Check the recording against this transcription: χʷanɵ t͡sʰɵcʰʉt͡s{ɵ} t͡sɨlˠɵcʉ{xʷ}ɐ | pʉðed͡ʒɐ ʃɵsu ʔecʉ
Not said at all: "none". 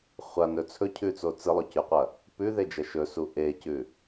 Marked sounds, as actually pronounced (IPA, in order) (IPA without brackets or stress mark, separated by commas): o, qʷ